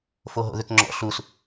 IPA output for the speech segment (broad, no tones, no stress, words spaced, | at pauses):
foɦo̰ðʏkŋ͡ǁɔ̰ ɬus